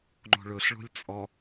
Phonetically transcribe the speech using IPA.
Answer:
ŋ͡ǃ o̤ ɭ ɵ ɬ ɭ o̤ lʲ t͡sʼ ɔ

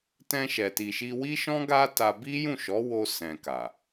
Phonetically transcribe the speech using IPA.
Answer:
t ɛ̃˧ ʃ ɛ˨ t i˨ ʃ i˧ w i˦ ʃ ɔ̃˦ ɡ a˦ t a˧ b i˦ j ũ˦˨ ʃ ɔ˨˦ w o˧ s ɛ̃˨ k a˨

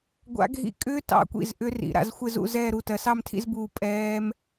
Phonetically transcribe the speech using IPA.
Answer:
ɡʷ a̰˦˥ ɡʱ ḭ˦˥ kʼ ʏː˦˥ t ɑ̰˧˩ kʷ ḭ˧˩ z ʔ ʏ˦˥ r ḭ˩˧ ɾ a̰˥˨ z xʷ ɪ˥˨ z ṵ˥˨ z ɛː˥˨ ɾ u˧˩ t ɜ˩˧ s ɑ˥˨ m tʰ ḭ˥˨ z b uː˧˩ pʼ ɛː˦˥ m

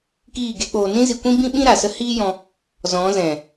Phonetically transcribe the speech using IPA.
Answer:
k iː˦˨ ɡ e˦ k͡p oː˧ n ĩ˦ z i˧ kʷ ĩ˦ b ĩ˦ ɓ ĩ˦ ɾ a˨ s ə˦ h iː˦ j ɔ̃˧ | z ɔ̃˨˦ z ɛ̃˨

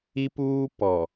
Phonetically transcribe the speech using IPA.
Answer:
i˦ p uː˦ p ɔ˨

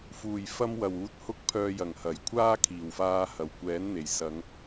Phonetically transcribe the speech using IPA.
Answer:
f uː˨˩ j f ɐ˧ m w ɐ˨˩ w uː˨˥ t̚ h ʊ˧ k̚ pʰ œː˨ j ɐ˨˩ ŋ h ɐ˨˩ j kʷʰ aː˥ kʰ iː˨˩ w f aː˧ h ɐ˨˩ w kʷ ɛː˨˥ n n̪ e˨˩ j s ɐ˨˧ ŋ

